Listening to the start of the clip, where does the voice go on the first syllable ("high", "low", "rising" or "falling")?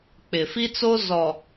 low